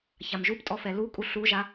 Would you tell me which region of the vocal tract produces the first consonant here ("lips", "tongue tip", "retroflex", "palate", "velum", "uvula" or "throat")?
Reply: palate